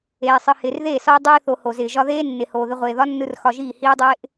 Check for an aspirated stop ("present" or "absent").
absent